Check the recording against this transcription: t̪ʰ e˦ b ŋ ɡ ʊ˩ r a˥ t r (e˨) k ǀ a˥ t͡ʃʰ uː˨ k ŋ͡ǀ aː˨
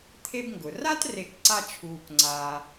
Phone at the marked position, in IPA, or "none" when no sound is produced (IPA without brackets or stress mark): e˨